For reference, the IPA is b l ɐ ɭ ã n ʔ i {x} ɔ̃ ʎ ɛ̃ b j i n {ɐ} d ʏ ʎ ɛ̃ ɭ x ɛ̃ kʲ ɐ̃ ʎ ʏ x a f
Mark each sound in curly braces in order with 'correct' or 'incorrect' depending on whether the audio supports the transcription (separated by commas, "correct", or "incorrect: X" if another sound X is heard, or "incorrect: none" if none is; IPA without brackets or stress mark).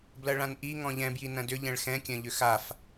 incorrect: ŋ, incorrect: ɐ̃